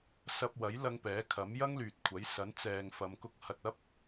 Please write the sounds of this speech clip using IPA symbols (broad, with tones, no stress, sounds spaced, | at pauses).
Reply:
s ɐ˧ p̚ w ɐ˨˥ j l ɐ˧ ŋ p ɛː˨˥ kʰ ɐ˨˥ m j ɐ˥ ŋ l yː˨ t̚ kʷʰ ɐ˨˥ j s ɐ˨˥ n t͡s ɛː˨ ŋ f ɐ˨˧ m k ʊ˧ k̚ h ɐ˧ t̚ ɐ˥ p̚